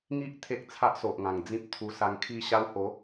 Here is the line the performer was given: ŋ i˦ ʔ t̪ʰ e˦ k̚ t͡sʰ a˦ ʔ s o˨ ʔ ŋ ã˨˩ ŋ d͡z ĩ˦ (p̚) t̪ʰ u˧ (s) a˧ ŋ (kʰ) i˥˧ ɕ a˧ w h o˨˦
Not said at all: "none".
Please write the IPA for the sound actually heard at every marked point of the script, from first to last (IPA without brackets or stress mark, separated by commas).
p̚, s, kʰ